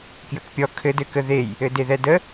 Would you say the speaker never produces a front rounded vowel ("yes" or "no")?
yes